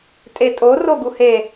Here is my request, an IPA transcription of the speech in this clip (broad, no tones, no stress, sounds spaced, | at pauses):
tʼ e tʼ o r o ɡ u h e